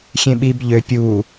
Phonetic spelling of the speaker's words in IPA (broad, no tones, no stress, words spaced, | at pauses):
xʲẽɓib ʎø pʲu